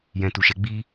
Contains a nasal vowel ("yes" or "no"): yes